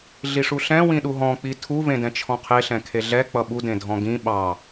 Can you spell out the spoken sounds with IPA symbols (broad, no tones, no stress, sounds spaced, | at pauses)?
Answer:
ɮ i ʂ u ɬ ɛ̃ w ĩ ɗ u ɦ ɔ̃ k͡p i tʰ u v ẽ d ɛ̃ t͡ʃʰ ɔ̃ qʰ e ɬ ɛ̃ kʰ e ɮ ɛ k͡p ʌ ɓ u d ẽ dʱ ɔ̃ ɡ ĩ ɓ ɑ